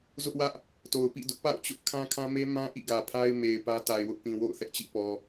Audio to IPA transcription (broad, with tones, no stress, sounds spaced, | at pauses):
z ʊ˦ ʔ w ä˦ ʔ | t o˨ ʊ̯ p ḭ˦˨ d ʊ˦ ʔ p a̰˦˨ ʊ̯ t͡ɕ ʊ˦ ʔ kʰ ã˦ kʰ ã˦ m e˦ m ã˦ ʔ ḭ˦˨ ɡ ä˨ pʰ a˦ ɪ̯ m e˨ ɪ̯ p ä˦ t a˨ ɪ̯ w ʊ˦ ʔ p ĩ˨ w o̰˦˨ ʊ̯ θ ɛ˦ ʔ t͡ɕ ḭ˦˨ p ɔ˨